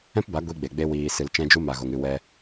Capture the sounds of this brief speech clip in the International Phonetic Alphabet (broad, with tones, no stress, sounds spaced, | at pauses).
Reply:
ɛ̃˦ p b a˨˦ ɡʷ i˧ ɡ͡b e˨ ɡ͡b e˧ w iː˨ s ɨ˨ l t͡ʃ ɛ̃˧ d͡ʒ u˧ m a˨ ɣ o˨ ŋ ɨ˦˨ w ɛ˧